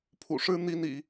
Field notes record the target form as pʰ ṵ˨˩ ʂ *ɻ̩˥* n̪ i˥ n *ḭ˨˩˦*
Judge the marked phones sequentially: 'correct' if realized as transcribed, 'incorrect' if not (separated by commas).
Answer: correct, correct